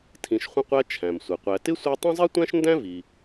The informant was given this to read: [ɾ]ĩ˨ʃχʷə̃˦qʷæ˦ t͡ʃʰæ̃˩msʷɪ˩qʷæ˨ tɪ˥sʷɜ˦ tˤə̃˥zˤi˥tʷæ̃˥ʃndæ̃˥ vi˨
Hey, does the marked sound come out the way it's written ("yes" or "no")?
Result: no